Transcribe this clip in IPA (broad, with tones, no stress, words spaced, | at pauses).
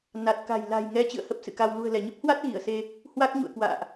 na˨˩t̚ka̤˨˩j la̤˨˩jŋɛ˨˦ t͡ɕɨ̰˧˨ə̯hə˦˥p̚sɨ̰˧˨ka˧w lṳ˨˩ə̯lɛ˧˩ɲə˦˥p̚hwa˦˥t̚ ɣi˧˩ə̯se˧ | hwa˦˥k̚ɲṵ˧˨ə̯kwa̰ː˧˨ʔ